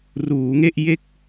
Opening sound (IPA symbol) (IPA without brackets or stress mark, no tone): r